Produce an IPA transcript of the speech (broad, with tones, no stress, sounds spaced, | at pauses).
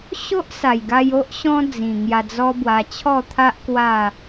ɕ o˦ ʔ s a˨˩ j ɡ a˧ j o˦ ʔ ɕ ɔ̃˦ d͡z ĩ˨˩ ŋ j a˧ d͡z ɔ˦ b w a˧ t͡ɕʰ ɔ˥˧ t̪ʰ a˦ ʔ k w a˥˧